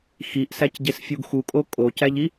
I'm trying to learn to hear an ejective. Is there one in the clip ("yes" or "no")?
yes